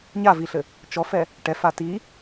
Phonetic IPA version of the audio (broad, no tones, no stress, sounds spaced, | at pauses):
ɲ a v i ɬ ɘ | t͡ʃ ɔ f ɛ | ʈ ɛ f a t i